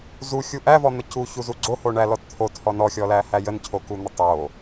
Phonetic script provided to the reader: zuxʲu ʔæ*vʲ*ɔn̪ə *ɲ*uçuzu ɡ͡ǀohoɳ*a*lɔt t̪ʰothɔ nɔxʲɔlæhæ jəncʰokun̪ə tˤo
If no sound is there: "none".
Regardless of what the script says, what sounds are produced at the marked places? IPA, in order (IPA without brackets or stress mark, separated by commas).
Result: v, c, æ